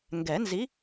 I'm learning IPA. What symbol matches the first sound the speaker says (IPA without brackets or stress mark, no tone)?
ŋ